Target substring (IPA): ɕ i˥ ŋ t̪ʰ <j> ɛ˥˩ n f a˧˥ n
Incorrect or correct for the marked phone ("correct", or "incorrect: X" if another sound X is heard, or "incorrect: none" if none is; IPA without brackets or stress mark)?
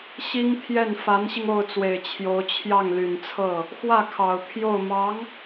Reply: correct